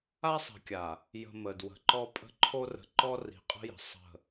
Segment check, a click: present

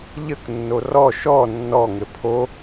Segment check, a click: absent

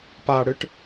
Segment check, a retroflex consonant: present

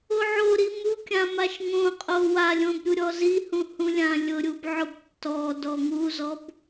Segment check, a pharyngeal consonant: present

